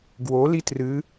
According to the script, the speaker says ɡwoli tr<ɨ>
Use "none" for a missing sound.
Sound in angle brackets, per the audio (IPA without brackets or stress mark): ɨ